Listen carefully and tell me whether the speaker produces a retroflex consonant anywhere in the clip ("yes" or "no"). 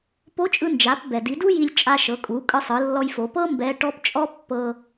yes